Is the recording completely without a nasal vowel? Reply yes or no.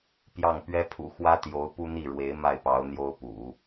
yes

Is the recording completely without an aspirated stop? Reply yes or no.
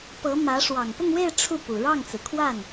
no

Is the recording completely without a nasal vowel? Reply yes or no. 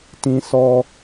no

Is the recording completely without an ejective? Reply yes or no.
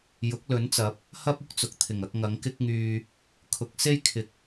yes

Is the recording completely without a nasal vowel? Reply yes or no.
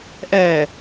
yes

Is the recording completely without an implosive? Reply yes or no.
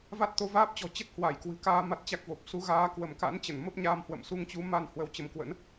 yes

